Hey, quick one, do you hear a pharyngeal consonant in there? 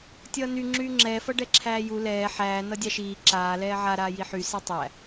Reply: yes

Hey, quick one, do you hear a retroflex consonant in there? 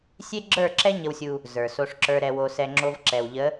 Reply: yes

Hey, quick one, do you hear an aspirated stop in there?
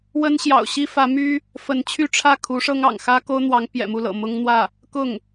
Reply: yes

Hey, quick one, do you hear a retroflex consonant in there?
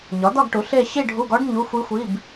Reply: yes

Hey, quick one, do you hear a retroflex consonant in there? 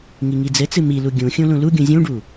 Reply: yes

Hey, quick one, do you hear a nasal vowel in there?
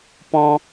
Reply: yes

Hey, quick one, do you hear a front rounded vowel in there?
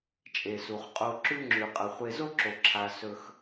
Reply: no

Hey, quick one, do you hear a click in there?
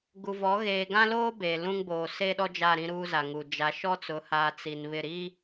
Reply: no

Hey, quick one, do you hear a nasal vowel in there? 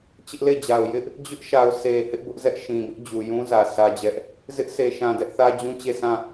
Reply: yes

